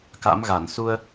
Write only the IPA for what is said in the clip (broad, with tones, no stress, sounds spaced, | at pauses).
k a̰˧˥ m ɣ a˧˩ n s u˧ ə̯